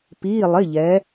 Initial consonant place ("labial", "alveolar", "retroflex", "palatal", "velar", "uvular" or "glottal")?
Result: labial